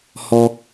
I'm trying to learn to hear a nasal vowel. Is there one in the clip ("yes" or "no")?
no